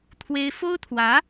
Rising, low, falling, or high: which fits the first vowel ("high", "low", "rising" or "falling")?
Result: high